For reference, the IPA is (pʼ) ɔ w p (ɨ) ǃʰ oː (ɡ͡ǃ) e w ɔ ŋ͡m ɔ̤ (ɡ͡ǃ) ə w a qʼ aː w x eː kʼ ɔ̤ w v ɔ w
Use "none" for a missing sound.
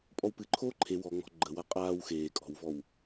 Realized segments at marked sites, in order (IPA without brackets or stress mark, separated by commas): pʼ, ɨ, ǃʰ, ɡ͡ǃ